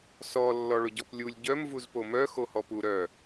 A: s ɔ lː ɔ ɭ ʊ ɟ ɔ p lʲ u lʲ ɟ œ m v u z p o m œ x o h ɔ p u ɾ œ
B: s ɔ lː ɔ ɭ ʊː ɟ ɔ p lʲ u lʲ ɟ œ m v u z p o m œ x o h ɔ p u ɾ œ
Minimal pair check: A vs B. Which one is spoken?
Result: A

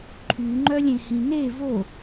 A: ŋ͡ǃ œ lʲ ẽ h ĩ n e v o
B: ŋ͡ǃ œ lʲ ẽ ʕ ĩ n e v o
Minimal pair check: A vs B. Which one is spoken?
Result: A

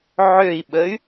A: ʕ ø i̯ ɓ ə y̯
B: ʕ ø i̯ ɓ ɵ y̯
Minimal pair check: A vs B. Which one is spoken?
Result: A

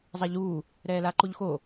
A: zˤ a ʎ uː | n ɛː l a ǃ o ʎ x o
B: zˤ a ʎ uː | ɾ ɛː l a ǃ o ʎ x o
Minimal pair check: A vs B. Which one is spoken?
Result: B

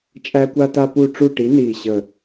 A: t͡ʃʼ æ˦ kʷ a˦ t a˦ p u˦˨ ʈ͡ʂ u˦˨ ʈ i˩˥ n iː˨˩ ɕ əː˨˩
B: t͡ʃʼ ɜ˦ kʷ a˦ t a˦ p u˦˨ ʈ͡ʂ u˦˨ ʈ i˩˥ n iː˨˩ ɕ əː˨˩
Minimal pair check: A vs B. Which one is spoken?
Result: A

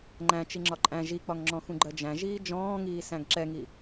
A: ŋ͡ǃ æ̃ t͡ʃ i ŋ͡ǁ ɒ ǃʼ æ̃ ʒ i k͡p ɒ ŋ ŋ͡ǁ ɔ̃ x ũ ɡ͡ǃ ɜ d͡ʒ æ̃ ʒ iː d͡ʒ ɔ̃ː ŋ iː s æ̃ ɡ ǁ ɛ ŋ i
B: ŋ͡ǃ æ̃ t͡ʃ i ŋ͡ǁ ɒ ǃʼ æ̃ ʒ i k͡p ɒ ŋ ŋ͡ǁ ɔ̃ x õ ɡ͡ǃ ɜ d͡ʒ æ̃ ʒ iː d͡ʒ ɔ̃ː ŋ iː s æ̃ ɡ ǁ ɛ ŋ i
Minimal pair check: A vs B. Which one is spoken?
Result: A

